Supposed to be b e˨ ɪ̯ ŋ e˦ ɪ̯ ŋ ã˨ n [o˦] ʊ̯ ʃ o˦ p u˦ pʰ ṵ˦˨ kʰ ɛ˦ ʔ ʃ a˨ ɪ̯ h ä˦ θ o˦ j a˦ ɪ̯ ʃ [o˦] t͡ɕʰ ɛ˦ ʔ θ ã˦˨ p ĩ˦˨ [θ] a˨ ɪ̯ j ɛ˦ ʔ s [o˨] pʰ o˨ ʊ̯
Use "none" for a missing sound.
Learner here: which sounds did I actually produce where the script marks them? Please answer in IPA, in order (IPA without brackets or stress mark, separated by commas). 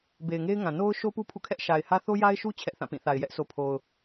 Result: o˦, u˦, θ, o˨